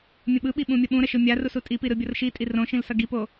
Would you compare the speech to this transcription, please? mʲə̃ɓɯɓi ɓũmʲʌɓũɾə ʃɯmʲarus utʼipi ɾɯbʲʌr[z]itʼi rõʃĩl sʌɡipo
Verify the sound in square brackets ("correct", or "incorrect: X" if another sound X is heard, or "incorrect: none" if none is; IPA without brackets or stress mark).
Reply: incorrect: ʃ